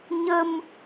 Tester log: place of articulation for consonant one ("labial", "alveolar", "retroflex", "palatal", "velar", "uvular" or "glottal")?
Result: palatal